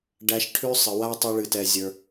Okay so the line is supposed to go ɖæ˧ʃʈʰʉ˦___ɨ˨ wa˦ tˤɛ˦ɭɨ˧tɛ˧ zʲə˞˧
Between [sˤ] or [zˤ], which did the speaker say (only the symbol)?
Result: sˤ